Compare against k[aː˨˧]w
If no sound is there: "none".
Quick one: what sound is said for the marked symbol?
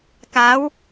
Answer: aː˨˧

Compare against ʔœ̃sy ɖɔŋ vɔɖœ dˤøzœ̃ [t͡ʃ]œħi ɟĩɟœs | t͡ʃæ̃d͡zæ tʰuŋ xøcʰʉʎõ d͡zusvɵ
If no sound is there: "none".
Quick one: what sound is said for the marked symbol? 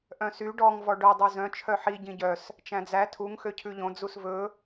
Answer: t͡ʃʰ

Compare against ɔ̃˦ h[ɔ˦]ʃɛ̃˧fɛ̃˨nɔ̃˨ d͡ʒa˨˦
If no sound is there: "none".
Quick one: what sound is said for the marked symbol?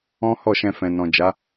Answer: ɔ˦˨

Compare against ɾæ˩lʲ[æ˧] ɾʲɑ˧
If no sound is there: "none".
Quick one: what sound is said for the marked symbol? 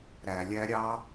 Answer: æ˧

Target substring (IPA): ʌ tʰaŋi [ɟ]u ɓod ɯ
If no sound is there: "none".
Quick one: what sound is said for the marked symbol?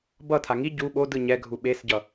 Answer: ɟ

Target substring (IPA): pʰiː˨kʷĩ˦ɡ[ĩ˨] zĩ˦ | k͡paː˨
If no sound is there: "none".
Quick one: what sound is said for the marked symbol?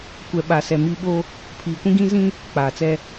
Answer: ĩ˦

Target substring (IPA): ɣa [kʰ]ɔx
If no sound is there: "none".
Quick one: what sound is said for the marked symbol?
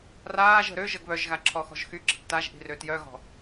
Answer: ǁʰ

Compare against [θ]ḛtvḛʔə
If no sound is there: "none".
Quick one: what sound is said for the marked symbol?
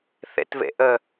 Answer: θ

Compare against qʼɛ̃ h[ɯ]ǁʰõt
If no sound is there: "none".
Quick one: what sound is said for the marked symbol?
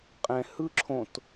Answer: ɯ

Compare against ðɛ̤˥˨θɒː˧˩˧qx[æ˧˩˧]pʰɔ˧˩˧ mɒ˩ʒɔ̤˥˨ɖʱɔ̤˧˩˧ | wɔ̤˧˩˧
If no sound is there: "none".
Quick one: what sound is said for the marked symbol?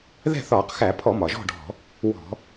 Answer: æ˧˩˧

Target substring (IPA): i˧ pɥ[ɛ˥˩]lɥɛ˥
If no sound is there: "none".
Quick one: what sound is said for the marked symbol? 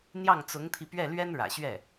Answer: ɛ˥˩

